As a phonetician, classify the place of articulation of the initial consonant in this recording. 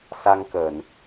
alveolar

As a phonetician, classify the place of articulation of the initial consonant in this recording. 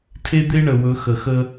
alveolar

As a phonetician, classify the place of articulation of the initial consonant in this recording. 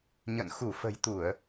palatal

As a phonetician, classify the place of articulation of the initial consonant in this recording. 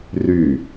alveolar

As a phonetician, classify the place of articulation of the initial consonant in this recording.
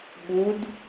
labial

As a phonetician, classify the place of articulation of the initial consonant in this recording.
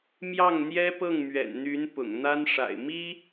labial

